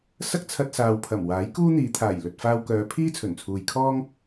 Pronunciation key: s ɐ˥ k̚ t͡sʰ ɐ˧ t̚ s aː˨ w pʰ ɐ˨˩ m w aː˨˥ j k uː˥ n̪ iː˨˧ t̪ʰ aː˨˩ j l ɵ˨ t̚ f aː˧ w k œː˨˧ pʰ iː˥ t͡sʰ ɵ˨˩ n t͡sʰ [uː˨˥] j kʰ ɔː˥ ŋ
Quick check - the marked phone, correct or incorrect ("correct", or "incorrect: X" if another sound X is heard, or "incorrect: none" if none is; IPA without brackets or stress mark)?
incorrect: uː˨